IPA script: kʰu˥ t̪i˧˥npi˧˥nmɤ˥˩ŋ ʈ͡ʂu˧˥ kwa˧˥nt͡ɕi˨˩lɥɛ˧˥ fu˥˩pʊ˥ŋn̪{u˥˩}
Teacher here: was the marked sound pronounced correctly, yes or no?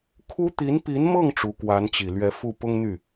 no